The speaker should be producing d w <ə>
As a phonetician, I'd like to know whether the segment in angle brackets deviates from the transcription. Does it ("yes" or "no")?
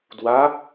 yes